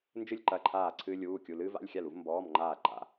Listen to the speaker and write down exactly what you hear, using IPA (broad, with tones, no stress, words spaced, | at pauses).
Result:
nd͡ʒɨ˥lʲ ǃɐ˧˥˧ǃʰaː˥˨ ǀʰɨː˥lʲuː˧˥˧kʲu˧˥˧ lɨː˥va̰˧˥˧lʲxʲa˥˨lu˥v mbɔː˧˥˧mŋ͡ǃaː˥˨ǃa̰˧˥˧